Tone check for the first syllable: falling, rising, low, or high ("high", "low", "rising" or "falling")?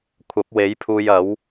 rising